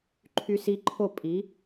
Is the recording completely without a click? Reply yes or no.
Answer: no